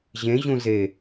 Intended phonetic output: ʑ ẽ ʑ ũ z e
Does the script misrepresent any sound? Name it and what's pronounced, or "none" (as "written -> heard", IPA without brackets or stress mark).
none